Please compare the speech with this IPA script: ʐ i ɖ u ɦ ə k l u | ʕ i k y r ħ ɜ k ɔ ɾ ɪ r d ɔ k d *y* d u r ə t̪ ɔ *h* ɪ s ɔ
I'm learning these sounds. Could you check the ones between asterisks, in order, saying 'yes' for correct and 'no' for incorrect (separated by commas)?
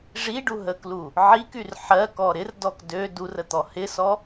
no, yes